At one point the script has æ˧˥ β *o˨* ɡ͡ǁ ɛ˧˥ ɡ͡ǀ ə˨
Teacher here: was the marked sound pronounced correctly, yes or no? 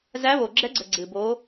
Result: yes